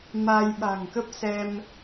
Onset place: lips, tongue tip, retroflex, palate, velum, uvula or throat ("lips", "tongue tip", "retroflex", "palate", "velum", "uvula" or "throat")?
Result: lips